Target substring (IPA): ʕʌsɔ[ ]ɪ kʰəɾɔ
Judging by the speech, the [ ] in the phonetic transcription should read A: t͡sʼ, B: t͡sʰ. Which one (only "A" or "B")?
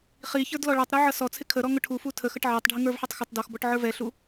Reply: B